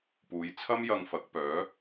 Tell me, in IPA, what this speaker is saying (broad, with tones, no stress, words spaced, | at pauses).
puː˨˧jt͡sʰɐ˥mjɐ˧ŋ fɐ˨˥k̚pœː˨˥